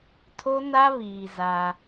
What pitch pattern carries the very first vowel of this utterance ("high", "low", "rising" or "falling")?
high